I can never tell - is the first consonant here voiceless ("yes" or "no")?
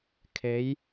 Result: yes